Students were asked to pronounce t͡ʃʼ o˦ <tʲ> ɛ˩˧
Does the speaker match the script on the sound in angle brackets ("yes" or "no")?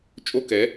no